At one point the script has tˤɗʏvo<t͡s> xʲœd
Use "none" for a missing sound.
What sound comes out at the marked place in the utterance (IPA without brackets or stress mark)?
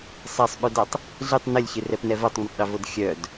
d